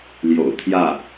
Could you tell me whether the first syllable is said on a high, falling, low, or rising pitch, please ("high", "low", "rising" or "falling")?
low